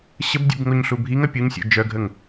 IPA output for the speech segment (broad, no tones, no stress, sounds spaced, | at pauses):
ɕ ə b dʲ ṵ b ŋ o ɲ ɬ u bʱ i ŋ ɐ pʲ u ɲ sʲ ṵ d͡ʒ œ ɡʱ ə ŋ